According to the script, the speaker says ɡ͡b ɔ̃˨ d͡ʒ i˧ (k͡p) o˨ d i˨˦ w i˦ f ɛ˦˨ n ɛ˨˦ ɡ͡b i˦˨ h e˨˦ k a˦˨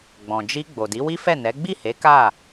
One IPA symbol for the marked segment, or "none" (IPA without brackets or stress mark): ɡ͡b